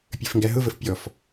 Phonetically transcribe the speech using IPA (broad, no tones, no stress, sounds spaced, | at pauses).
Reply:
pʲ ə˞ f ŋ ɡ æ ɦ ʊ v ə f pʲ ɔ f